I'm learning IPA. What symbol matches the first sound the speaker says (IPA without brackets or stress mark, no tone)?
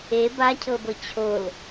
e